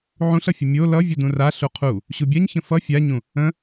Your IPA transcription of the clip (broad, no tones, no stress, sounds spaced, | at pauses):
ʕ ũ ɬ ʌ fʲ ə mʲ o l ʌ vʲ u d ũ r a ɬ u qʰ u | ɕ u bʲ a ɲ ç ə̃ f ʌ fʲ a ɲ ũ | ə̃